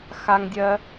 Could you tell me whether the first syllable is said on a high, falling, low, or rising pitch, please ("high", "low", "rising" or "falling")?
high